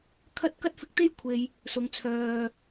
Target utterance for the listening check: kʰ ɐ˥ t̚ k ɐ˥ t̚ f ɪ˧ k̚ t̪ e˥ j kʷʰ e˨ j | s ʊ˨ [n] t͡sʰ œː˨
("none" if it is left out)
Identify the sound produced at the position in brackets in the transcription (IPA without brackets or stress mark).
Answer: ŋ